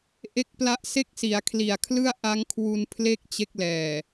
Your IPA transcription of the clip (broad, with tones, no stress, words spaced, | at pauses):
ʔe˦˥k̚pla˦˥ʔse˥˩k̚ si˩˦a̯kʰli˨˩a̯ kʰlɯ˥˩a̯ʔa˦˥ŋkʰwu˧n pʰle˥˩k̚ t͡ɕe˦˥k̚lɛː˨˩